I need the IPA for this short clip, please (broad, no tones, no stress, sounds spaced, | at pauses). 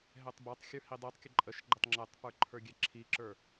ɦ ɛ tˤ b a tˤ xʲ ə˞ h i dˤ i tˤ kʲ ə ǃʼ ə ʃ ɡ͡ǃ ə tˤ ŋ͡ǁ ɛ tˤ p ə˞ ǃʰ ə˞ ɡʲ ɛ ǁʰ i ǁ ə˞